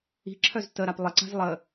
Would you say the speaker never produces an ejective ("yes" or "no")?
yes